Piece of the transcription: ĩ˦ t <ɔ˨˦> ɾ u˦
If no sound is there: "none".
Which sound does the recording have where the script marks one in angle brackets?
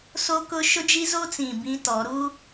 ɔ˨˦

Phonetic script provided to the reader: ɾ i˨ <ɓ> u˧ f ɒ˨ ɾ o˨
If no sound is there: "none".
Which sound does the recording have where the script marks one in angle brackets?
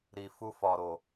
f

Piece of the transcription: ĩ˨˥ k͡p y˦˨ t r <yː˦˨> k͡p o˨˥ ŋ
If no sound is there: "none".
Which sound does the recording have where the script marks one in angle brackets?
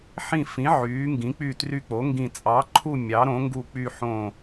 y˦˨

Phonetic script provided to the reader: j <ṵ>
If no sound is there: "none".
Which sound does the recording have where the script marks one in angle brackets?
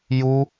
u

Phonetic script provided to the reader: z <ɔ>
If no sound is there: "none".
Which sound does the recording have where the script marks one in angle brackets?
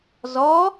ɔ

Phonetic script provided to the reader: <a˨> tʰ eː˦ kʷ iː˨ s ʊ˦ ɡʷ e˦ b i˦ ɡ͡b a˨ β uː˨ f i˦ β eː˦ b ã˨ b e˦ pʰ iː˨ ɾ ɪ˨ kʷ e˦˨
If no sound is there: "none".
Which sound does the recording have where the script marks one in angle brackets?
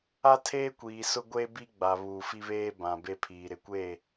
a˦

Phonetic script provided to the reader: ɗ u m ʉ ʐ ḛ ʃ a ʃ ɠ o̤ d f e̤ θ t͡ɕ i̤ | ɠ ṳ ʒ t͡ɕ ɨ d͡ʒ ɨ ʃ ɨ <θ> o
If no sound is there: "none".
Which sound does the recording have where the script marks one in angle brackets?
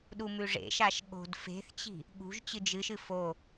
f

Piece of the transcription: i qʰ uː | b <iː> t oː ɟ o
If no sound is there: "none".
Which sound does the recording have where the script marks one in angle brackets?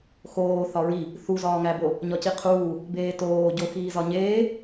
eː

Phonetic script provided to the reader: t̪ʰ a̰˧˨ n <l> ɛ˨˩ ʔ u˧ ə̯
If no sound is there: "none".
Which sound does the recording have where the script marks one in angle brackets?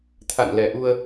l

